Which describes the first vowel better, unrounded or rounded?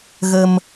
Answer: unrounded